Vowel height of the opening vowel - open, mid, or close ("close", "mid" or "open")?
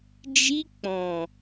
close